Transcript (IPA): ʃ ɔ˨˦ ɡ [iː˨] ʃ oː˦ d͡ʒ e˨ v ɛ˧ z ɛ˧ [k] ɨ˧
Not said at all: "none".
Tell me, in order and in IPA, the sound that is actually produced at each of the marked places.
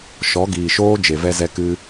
iː˨, k

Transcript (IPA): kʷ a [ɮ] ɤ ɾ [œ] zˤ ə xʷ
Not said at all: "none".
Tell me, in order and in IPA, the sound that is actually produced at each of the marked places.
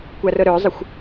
r, œ

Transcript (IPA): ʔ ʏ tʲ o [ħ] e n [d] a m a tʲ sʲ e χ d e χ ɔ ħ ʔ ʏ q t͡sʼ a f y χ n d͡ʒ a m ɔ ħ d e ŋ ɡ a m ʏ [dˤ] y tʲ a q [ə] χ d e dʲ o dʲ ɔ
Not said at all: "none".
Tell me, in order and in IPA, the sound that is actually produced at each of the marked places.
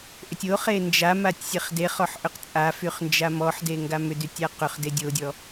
χ, d͡ʒ, d, ʏ

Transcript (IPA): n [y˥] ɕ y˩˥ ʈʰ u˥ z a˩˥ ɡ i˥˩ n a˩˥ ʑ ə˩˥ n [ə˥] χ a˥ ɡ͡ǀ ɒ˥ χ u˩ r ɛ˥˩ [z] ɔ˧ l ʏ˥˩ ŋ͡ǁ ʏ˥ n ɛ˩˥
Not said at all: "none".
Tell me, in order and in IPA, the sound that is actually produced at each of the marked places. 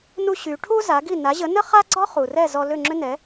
u˥, ə˥, z

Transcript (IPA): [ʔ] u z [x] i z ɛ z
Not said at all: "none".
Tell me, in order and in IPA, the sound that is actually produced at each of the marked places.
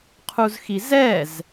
qʰ, x

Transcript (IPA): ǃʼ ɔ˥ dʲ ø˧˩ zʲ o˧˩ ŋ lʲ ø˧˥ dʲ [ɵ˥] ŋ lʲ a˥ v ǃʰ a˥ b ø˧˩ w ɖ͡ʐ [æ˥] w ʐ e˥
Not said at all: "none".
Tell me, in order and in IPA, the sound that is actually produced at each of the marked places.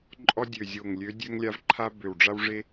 ø˥, a˥

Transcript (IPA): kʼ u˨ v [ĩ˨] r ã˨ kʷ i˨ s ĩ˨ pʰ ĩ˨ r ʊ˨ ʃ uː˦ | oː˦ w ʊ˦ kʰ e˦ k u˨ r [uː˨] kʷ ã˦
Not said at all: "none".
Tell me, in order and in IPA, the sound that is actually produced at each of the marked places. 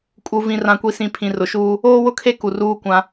ĩ˨, uː˦

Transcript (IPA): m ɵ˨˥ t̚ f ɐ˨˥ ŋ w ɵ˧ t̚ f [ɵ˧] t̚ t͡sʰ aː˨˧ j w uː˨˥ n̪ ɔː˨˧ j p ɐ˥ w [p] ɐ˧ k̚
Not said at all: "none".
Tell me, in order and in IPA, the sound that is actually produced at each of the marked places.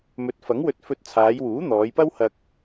ɵ˧, h

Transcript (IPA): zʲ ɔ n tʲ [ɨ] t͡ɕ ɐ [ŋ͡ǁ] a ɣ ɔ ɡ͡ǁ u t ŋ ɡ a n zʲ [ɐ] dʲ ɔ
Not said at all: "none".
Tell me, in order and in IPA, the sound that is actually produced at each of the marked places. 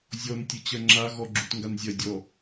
ɨ, ŋ͡ǁ, ɐ

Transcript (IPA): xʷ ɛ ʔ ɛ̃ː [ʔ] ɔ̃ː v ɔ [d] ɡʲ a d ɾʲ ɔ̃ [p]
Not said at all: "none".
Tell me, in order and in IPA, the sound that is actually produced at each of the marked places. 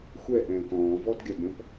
k, d, p

